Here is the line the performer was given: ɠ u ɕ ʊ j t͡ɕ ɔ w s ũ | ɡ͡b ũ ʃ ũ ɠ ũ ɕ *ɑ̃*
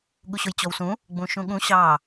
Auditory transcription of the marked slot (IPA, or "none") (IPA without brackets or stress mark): ɑ